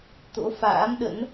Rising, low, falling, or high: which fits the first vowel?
rising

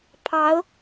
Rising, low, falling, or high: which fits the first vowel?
rising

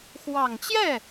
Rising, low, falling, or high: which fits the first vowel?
low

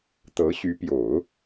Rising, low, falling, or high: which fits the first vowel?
rising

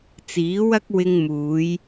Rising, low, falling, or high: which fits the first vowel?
rising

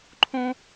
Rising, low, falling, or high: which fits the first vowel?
high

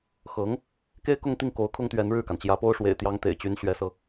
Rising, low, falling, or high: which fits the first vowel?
rising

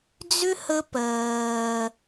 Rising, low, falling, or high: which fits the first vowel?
high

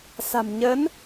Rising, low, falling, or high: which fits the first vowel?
low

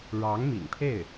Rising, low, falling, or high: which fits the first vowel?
rising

